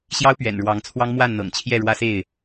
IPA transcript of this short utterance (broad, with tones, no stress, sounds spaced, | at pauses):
ɕ j ɑ˦ ʊ̯ p ɥ ɛ̰˨˩ n ɻ w ɑ˨˦ ŋ t͡sʰ w ɑ˦ ŋ m w a˥˨ n n̪ ɤ̰˨˩ ŋ t͡ɕʰ j ɛ˥˨ ɻ w ä˦ s e˥˨ ɪ̯